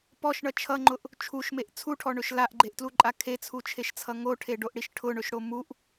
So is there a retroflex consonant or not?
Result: yes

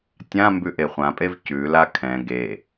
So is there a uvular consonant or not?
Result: yes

